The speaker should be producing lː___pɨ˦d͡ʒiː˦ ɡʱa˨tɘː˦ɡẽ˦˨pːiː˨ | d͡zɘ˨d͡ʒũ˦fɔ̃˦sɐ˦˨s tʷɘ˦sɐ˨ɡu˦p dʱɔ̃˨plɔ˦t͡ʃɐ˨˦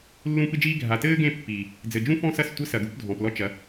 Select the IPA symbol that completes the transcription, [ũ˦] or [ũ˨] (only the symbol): ũ˦